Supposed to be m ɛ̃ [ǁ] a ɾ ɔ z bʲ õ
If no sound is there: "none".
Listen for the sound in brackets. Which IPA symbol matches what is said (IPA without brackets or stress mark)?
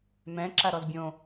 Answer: ǁ